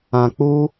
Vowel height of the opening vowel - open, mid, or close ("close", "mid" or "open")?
open